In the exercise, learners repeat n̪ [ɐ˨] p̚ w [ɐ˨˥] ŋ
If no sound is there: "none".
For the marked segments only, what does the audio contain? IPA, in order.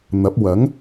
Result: ɐ˨˥, ɐ˨˥

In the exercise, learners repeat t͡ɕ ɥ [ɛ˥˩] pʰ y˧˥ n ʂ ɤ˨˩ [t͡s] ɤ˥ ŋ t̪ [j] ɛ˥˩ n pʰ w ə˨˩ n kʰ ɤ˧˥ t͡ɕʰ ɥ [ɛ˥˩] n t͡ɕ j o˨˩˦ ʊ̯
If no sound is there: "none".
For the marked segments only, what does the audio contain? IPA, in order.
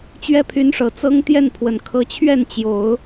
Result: ɛ˥, t͡s, j, ɛ˥˩

